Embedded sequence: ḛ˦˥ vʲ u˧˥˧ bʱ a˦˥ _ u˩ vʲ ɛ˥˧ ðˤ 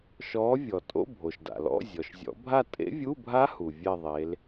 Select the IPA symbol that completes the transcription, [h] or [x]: h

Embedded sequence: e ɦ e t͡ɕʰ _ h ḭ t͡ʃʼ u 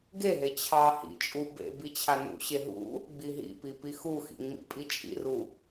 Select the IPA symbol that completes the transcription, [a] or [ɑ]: ɑ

